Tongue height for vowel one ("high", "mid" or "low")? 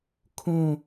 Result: high